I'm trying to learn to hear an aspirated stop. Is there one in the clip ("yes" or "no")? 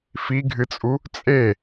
no